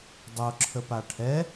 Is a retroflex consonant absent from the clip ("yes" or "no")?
no